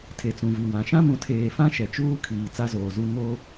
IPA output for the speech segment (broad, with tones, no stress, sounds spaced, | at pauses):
tʰ e˨ t͡s ũ˨ v i˨ w ã˨ ʃ ã˦ m ũ˨ tʰ eː˨ f ã˦ ʃ ɛ˨ t͡ʃ uː˦ kʰ iː˨ t͡s a˦ z oː˨ z u˦ ŋ o˦